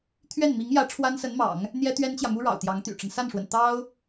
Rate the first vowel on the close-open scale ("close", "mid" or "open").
mid